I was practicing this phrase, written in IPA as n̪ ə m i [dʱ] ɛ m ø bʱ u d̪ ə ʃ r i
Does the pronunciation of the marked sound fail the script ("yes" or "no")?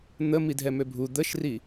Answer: no